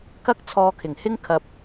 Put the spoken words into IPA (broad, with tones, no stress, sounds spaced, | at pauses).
k ɐ˥ k̚ t͡sʰ ɔː˧ kʰ ɪ˨˩ ŋ h ɪ˥ ŋ kʰ ɐ˨ p̚